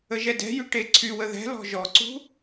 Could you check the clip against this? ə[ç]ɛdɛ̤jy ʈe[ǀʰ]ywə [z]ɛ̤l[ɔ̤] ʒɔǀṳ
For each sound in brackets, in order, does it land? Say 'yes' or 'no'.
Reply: no, yes, no, yes

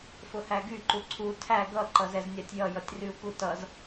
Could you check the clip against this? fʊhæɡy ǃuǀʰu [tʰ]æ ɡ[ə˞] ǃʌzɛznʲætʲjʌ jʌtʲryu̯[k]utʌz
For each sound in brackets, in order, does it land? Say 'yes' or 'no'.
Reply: yes, no, yes

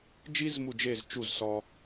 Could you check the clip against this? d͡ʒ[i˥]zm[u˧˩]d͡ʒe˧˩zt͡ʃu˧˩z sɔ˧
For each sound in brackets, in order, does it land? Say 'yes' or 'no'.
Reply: yes, yes

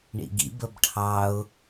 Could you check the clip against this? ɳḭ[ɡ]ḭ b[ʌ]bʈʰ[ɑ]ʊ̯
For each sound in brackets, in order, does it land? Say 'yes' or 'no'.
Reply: yes, no, yes

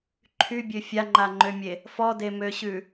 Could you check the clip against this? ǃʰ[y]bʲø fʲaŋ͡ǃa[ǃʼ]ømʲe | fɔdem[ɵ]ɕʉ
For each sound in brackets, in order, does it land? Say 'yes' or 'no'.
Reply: yes, no, no

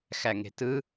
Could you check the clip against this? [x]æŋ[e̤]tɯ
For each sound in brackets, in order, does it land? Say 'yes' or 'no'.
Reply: yes, yes

